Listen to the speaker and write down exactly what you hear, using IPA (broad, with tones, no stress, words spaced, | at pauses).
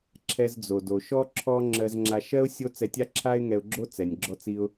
ǁʰɛ˧zd͡zo˩do˩ʃɔ˥ ǁʰɔ˥ ŋ͡ǁɜ˧zŋ͡ǁa˧ʃɜ˥ʊ̯ sʲo˥ t͡sɛ˧tʲa˥ǁʰa˥ɪ̯ ŋɛ˧ʊ̯ɡ͡ǁo˥ t͡sɛ˩nʲɡ͡ǁɔ˧t͡si˧ʊ̯